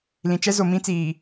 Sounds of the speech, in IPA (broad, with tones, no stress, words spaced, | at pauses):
lĩ˨t͡ʃɛ˦ zo˨mĩ˦t͡siː˨